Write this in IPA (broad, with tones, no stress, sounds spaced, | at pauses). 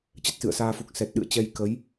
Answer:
t͡ɕ ə˦˥ t̚ s ɨ̰˧˨ ə̯ s aː˧ f u˨˩ k̚ s ɛ˨˩ t̚ ɗ ɨ̰˧˨ ə̯ t͡ɕ ɛ˧ j k ə˨˦ j